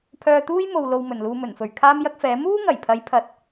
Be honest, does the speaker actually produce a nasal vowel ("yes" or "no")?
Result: no